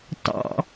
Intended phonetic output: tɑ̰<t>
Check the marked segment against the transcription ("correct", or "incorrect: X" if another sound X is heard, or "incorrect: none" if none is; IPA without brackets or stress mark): incorrect: none